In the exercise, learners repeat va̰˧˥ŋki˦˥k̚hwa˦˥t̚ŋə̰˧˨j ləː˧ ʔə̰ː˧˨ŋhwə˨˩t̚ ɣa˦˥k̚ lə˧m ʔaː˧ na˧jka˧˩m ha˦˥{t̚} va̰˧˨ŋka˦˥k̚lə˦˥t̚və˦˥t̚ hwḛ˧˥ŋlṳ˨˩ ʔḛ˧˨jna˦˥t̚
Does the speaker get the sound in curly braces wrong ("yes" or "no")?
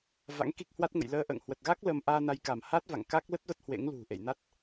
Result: no